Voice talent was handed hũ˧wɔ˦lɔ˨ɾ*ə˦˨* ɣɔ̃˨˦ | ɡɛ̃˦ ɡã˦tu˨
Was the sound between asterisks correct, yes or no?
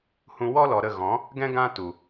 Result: yes